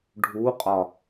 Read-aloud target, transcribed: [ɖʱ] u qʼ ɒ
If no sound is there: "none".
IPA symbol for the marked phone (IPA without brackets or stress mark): ɖʱ